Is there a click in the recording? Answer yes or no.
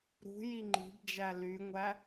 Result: yes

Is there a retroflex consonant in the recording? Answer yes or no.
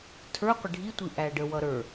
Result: yes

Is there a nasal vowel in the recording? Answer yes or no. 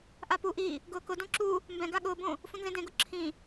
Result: yes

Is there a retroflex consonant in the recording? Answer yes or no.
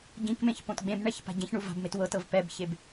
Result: yes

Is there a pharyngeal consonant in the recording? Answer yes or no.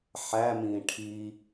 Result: yes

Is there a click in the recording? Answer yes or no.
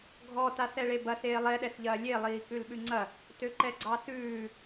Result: yes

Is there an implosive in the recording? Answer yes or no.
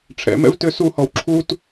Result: no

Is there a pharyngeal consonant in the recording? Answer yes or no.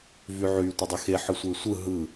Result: yes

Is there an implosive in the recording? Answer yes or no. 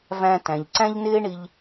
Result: no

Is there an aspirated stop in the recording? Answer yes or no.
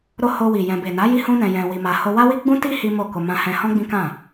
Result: no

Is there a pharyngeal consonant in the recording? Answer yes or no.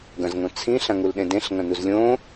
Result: no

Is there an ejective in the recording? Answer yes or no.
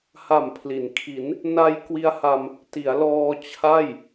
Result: no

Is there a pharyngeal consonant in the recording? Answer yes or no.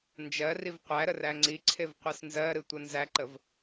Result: no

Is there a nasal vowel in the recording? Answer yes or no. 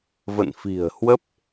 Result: no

